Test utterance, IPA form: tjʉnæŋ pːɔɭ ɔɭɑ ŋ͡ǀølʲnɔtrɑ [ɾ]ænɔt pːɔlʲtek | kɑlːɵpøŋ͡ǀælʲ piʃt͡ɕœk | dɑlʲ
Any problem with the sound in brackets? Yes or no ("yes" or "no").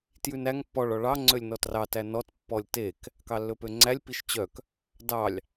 yes